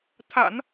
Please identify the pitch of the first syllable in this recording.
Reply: low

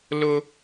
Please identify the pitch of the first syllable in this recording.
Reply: high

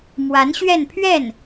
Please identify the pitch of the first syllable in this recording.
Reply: rising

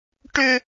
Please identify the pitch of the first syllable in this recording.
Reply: high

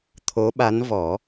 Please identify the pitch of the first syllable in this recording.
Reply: rising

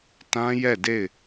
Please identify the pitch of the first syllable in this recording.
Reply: high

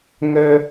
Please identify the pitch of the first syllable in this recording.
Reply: high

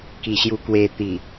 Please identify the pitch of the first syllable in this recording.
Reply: low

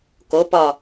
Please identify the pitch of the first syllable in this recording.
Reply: rising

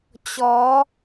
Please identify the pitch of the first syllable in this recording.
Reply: rising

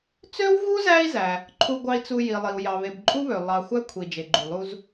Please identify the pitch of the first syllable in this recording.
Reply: high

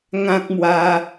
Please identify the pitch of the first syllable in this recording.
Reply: high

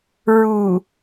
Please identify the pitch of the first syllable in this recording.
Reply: low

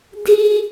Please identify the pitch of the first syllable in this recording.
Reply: high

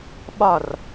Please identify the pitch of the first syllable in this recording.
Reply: falling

